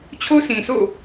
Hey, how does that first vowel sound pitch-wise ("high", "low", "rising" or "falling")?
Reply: high